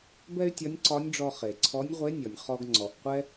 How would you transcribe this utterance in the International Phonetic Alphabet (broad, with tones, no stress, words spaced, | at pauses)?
bɛ˥y̯tʲɒ˧˥nʲǀɒ˧˥nʲɖ͡ʐɔ˧ χe˩ǀʰɔ˧˥nʲʁʷe˧˥ nʲɔ˩nʲ χɔ˧ɡ ŋ͡ǀɔ˩ʔqʷɛ˥